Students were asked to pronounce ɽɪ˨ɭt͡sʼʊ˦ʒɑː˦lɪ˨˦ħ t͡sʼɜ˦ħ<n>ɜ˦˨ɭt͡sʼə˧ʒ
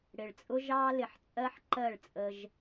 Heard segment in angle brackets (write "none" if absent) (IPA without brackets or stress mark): ǃ